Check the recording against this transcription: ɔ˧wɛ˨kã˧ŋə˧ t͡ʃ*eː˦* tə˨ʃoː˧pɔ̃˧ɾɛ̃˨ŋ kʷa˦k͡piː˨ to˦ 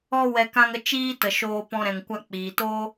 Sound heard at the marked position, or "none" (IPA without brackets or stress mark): iː˦